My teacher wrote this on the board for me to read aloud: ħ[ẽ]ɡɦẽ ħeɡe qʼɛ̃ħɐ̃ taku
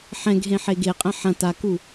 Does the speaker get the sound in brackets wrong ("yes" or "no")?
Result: yes